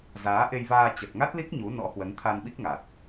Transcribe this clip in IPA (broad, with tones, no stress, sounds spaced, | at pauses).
z aː˨˦ ʔ e˧ j v aː˧ t͡ɕ ə˨˩ t̚ ŋ a˦˥ t̚ l i˦˥ k̚ ɲ u˨˦ n ɔ̰˧˥ h w ə˨˦ n t̪ʰ a˧ n ɓ i˦˥ k̚ ŋ a˨˩ t̚